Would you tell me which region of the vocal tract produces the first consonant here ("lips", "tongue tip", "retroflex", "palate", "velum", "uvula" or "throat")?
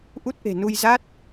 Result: throat